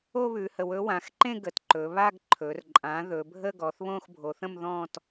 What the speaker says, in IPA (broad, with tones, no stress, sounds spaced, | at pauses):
o˥˧ β ʉ˩˧ h ə˩˧ w ɵ˩˥ w ã˩˧ x ǃ ẽ˥˧ ɡ ə˩˧ t ǃ ɵ˩˧ β a˥˧ ɡ ǃʰ ɵ˩˧ r ǃʼ ã˩˥ ð ɵ˩˧ bʱ ə˥˧ ɡ ɔ˩˧ θ β õ˥˧ x bʱ o˩˧ θ ə̃˥˧ m ð ɔ̃˥˧ t